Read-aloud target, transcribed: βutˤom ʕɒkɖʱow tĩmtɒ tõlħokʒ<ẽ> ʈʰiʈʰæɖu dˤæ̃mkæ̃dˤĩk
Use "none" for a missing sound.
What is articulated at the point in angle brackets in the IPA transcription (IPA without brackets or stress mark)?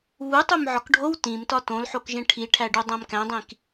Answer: ẽ